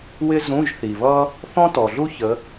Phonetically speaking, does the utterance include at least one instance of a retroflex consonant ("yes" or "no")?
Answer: no